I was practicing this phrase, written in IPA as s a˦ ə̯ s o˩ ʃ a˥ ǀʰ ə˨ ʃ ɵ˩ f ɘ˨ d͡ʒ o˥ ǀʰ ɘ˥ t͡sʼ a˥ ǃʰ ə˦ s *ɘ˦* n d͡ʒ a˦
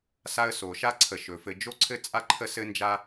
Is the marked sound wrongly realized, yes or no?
no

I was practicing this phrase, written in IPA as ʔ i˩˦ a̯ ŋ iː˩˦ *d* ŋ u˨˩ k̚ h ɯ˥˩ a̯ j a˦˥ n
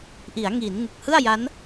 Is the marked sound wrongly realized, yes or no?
yes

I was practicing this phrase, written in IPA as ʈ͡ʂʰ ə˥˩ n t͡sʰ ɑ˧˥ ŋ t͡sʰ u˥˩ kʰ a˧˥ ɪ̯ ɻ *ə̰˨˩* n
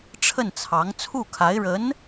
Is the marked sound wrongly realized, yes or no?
yes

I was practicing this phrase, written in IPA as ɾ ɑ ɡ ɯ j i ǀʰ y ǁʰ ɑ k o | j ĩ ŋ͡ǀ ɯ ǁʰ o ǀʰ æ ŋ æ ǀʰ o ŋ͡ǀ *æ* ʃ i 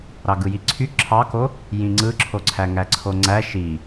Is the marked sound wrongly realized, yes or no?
no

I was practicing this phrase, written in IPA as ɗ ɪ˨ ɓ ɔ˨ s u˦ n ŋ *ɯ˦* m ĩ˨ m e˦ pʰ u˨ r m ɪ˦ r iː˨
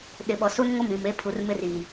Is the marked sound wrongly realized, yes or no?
yes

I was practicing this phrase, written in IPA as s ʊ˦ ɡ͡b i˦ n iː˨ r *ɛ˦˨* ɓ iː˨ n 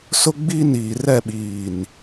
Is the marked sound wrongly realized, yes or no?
no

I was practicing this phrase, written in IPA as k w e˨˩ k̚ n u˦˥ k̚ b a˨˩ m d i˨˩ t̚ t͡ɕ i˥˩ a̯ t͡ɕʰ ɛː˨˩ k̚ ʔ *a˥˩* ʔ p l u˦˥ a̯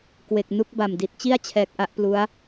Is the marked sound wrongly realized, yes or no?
no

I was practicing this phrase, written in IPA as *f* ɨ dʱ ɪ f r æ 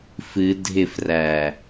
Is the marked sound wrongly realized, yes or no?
no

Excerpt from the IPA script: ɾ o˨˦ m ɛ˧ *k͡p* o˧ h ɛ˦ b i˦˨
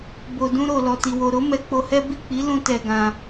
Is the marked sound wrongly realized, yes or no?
no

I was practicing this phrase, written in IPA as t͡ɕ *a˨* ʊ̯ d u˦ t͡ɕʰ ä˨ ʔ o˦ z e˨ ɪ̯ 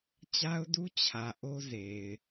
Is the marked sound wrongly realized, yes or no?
yes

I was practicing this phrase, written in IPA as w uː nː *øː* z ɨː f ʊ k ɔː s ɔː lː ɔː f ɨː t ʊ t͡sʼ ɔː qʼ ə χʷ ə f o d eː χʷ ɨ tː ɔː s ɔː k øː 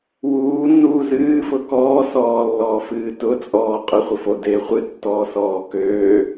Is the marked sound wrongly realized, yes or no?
yes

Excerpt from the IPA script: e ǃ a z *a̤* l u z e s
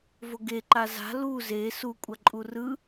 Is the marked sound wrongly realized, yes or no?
no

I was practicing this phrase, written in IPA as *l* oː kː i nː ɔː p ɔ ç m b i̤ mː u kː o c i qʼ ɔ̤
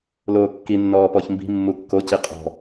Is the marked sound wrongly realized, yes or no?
no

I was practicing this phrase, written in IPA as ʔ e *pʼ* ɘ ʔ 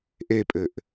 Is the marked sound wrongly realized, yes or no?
no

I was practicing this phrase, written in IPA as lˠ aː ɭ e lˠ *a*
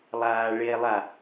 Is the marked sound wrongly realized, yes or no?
no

